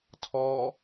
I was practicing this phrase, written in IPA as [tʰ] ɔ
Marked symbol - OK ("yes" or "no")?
yes